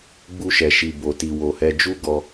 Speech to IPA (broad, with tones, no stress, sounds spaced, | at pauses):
ɡ͡b u˧ ʃ ɛ˨ ʃ i˨ b o˨ t i˨ w o˨ h ɛ˧ d͡ʒ u˦ ɡ ɔ˧